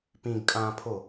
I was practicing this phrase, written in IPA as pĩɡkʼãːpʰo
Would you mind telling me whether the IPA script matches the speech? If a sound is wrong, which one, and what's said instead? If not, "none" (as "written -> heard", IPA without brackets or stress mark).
none